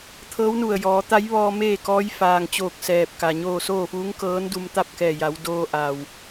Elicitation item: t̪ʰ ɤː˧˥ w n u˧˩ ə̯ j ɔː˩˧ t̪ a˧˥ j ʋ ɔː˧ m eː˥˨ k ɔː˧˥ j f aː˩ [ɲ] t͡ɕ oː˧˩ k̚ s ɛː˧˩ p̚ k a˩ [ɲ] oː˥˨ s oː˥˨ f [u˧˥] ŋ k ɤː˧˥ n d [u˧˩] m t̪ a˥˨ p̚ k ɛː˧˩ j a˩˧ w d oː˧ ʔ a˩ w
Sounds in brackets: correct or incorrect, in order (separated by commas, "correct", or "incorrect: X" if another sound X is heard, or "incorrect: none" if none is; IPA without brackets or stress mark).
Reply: incorrect: ŋ, correct, incorrect: uː˧˥, incorrect: u˧